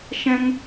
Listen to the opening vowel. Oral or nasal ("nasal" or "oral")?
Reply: nasal